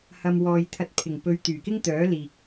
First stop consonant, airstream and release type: aspirated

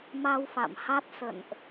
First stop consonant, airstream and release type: plain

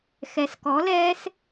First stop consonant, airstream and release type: plain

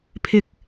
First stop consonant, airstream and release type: aspirated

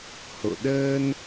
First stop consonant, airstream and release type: implosive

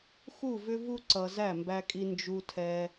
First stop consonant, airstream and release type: click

